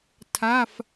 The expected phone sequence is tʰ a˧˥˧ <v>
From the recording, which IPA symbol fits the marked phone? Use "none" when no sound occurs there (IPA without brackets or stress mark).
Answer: f